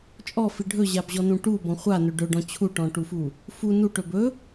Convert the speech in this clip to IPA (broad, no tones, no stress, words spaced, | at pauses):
t͡ʃʼɔfi ɖʱɵʑabʑɔnũ ʈubɔ̃ χʷanɵ ɖɵɖɔ̃ t͡ɕʰuʈɔ̃ʈufu | fu nuʈɵ bɵ